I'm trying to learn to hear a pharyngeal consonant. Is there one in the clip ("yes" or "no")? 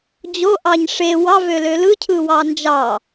no